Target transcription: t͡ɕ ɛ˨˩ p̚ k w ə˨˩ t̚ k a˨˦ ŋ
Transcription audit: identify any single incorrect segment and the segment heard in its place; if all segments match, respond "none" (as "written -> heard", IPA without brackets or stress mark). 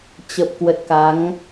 ɛ˨˩ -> ə˨˩